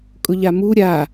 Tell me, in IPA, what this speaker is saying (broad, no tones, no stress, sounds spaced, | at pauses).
kʼ ʊ ʎ a m u ɾʲ a